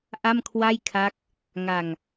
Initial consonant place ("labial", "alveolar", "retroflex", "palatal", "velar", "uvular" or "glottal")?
glottal